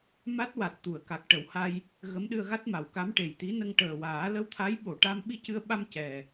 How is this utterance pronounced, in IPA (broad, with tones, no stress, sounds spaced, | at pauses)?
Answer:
m a˦˥ t̚ w a˨˩ t̚ t̪ u˨˩˨ ə̯ k a˨˩ k̚ ʈ ə˨˩˦ w h a˧ j | ɣ ə˧˥ m ɗ ɨ˧ ə̯ ɣ a˦˥ t̚ m a˨˩˨ w k a˧˥ m ʈ e˨˩ j t̪ i˧˥ n ə˧ ŋ ʈ əː˨˩ w aː˨˩˦ l ə˧ w t̪ʰ a˧˥ j ɓ o˨˩˨ ʈ a˧ m ɓ i˧ c ɨ˧ ə̯ ɓ a˧ m c ɛ˨˩